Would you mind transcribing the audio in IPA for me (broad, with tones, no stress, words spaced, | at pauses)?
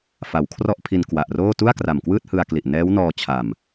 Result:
fa˩˦wkʰrɔ˥˩ʔpʰi˧n kwa˨˩ʔroː˥˩ tu˥˩a̯kra˨˩mkwɯː˥˩t̚hɯ˧a̯ kli˨˩ʔ nɛː˦˥wnɔː˧ t͡ɕʰa˨˩m